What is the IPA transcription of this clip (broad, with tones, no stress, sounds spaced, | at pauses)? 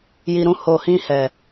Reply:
j i˨ ɾ ũ˧ h o˨ h ĩ˧ h ɛ˨